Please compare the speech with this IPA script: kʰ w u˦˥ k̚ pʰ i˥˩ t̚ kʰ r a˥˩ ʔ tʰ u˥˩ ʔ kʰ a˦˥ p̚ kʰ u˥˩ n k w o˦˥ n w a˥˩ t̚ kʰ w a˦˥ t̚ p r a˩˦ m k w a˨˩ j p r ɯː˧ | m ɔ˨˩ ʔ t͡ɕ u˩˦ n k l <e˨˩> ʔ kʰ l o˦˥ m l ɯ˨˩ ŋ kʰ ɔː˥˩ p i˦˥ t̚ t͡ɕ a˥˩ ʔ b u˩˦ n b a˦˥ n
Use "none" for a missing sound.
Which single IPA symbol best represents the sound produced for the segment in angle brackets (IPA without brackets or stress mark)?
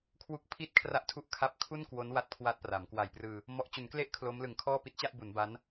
e˦˥